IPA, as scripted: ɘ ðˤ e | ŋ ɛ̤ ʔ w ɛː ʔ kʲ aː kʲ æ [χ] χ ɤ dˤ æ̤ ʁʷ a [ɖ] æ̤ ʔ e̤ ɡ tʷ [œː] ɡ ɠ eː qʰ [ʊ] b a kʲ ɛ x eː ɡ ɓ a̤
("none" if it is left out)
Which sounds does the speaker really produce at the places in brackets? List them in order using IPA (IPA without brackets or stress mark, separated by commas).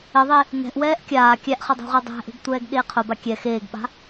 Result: ʔ, dˤ, ɛː, ʊ